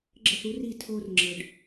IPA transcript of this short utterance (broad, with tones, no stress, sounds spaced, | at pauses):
ɡ͡ǁ ə˥˩ θ u˥ r i˥˩ tʰ o˧ r ŋ͡ǁ ə˩ ɖ